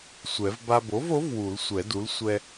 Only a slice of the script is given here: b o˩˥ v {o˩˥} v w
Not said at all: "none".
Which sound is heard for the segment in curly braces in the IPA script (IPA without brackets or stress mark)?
o˩˥